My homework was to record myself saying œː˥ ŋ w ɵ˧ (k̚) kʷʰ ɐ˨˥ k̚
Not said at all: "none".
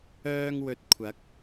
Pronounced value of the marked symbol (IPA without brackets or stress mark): t̚